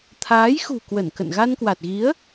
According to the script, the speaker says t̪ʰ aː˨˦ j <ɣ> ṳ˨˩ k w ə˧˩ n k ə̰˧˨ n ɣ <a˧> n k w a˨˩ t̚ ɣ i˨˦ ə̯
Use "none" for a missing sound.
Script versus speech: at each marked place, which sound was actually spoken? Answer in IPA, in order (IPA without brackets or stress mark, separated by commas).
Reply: x, a˧